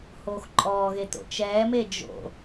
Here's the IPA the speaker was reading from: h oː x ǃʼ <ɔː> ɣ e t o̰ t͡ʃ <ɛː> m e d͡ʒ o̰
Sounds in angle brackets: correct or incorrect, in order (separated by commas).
correct, correct